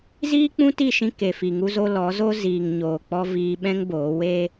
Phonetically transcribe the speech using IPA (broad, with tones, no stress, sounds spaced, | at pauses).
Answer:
z iː˦ k͡p ũ˦ t i˦˨ ʃ ĩ˧ k e˨ f i˨ ŋ u˦ z o˦ l ɔ˨˦ z o˦ z iː˨ ŋ ɲ oː˨ k͡p ɔ˧ v iː˧ ɓ ɛ̃˦ ŋ b oː˨˦ w e˧